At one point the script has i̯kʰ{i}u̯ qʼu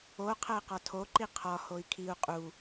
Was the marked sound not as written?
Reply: no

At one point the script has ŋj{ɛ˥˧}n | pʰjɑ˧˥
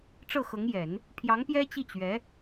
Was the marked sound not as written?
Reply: yes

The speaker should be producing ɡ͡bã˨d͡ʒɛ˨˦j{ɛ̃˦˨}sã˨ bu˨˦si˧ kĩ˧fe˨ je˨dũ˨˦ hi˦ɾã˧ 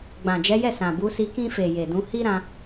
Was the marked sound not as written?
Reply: yes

